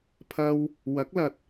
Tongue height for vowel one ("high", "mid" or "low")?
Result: low